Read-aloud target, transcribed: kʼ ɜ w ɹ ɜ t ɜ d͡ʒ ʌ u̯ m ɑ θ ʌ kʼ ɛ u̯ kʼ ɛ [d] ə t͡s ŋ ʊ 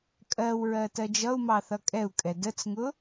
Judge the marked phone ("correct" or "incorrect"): correct